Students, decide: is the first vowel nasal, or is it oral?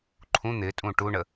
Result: nasal